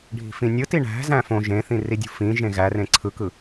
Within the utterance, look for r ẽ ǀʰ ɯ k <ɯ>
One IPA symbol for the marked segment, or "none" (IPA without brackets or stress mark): ɯ